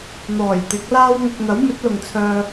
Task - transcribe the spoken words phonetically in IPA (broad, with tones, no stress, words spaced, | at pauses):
n̪ɔː˨˩jt̪ɪ˨˥k̚laː˥wŋʊ˧k̚ n̪ɐ˨˥wmɵ˨˥t̚lʊ˨ŋt͡sʰœː˧